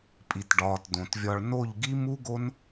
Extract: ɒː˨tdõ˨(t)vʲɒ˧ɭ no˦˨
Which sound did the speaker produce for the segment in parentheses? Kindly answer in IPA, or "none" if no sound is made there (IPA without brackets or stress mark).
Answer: t